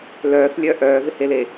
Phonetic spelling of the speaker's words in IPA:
lœːθlʲœ ʔœːvɪhele

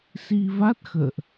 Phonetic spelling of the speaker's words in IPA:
si˧va˦˥t̚ xə̰ː˧˨ʔ

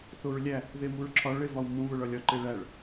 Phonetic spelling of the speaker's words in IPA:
θoɹlʲæ | ðemuɹǁʰɒɭ evɒwmũ βoɭɒlʲɒ ǃeɭæɭ

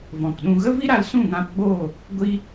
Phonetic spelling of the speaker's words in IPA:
vɔ̃˨kɗũ˧ ɣə˦vi˦ɾa˧l sũ˦˨ŋã˧pɡ͡boː˦˨ | ɡʷi˦

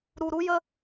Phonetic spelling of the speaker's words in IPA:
ɾu˨ɾu˧jə˧

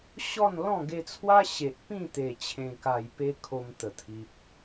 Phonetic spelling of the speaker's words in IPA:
ɕɔ˥˧nlɔ̃˥˧ ɡe˧t͡sʰwa˦ɕe˨ʔ pĩ˥˧t̪e˨˩ t͡ɕʰẽ˨˩ka˨˩jpe˧ kʰo˧mt̪ə˨˩t̪ʰi˨p̚

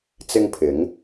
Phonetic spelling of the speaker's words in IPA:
t͡sɪ˥ŋpʰɪ˨˥ŋ

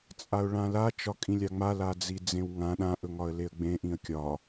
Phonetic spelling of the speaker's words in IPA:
t͡sʼaʊ̯ɭãla t͡ʃɒkʼĩlʲaŋ͡ma lad͡zid͡zẽwŋã ɗã ʔɵŋɒə̯leə̯ɡ͡bẽ ʔĩə̯kʲɒ

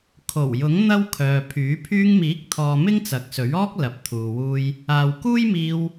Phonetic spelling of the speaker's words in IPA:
kʰo˨˩wjʊ˨˥ŋ n̪ɐ˥wkʰœː˨pʰyː˨˥ pʰyː˧ŋmiː˨˥k̚t̪ʰɔː˨ mɪ˥ŋt͡sɐ˨˥k̚sɵ˨˥ɥɔː˥k̚ lɐ˨p̚t̪ʰuː˨wuː˧j | aː˨wkuː˥jmiː˧w

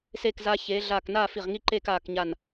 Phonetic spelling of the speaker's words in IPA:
seː˧˩kzaː˧çeː˩˧ ɮaː˧˩k naː˥˧fi˧˩ʁŋi˥˧ǃeː˥˧k aː˧˩kɲa˧˩n

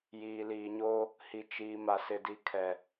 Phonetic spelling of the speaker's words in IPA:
jiː˨liː˨ɲoː˦ | hi˨t͡ʃiː˨ ma˨sɪ˨di˨kʰɛ˨

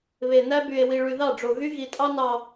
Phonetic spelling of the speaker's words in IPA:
βe˨næ˦by˨e̯ wi˨ɭy˨ðɑ˦˨ɖ͡ʐo˨ ɣy˦ ɣi˨tʼɑ˦nɑ˨

